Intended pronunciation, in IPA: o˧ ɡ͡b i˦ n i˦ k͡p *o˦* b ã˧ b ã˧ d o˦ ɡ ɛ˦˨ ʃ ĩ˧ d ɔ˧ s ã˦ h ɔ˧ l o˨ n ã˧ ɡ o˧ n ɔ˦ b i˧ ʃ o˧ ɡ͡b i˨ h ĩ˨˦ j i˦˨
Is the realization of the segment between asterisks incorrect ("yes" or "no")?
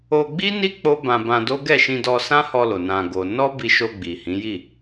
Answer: no